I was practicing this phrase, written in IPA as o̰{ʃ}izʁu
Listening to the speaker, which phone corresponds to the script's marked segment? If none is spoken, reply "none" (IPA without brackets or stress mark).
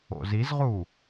z